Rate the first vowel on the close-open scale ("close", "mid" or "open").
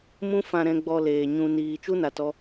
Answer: close